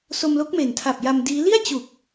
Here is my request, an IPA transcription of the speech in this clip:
s o˧ m l o˦˥ k̚ m e˨˩ n tʰ a˨˩ p̚ j a˧ m d iː˦˥ l i˥˩ a̯ t͡ɕ u˨˩ k̚

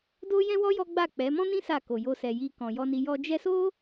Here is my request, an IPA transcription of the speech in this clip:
d o˦ j ɛ̃˦ w ɔ˦ j ɔ˦ ɡ͡b a˦˨ k͡p ɛ˨˦ m ɔ̃˦ n ĩ˦ s a˦˨ k o˨ j o˧ s ɛ˨ j i˧ k ɔ̃˨ j ɔ˧ n i˧ j ɔ˧ d͡ʒ ɛ˦ s o˦

